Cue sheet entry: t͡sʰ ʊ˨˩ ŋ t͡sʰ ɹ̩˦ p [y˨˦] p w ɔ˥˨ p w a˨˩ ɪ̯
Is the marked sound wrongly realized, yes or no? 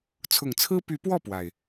no